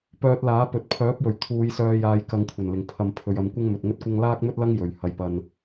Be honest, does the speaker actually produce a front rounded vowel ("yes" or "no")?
yes